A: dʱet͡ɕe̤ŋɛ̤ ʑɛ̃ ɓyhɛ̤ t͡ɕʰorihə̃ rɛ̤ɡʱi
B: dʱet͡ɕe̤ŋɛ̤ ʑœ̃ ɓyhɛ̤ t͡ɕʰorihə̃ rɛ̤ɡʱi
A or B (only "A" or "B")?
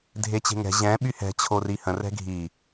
A